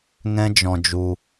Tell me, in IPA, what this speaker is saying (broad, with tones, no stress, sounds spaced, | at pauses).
ŋ ɛ̃˦ d͡ʒ ɔ̃˧ d͡ʒ u˧